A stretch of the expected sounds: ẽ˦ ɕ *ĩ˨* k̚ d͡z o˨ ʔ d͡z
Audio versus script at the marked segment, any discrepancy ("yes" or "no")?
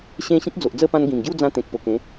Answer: yes